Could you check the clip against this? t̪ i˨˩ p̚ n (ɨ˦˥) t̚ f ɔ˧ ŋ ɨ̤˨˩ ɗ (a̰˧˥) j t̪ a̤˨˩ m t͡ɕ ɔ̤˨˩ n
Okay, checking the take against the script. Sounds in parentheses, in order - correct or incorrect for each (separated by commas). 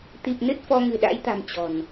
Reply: correct, correct